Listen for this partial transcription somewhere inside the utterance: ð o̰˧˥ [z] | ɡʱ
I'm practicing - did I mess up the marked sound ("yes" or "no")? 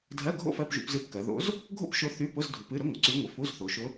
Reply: no